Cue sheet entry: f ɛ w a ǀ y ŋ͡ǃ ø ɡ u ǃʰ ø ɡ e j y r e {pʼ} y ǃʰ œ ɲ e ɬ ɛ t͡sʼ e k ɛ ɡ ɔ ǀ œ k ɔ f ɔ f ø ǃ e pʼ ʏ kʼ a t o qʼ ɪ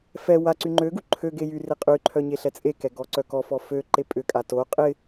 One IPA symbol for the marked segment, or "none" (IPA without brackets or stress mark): qʼ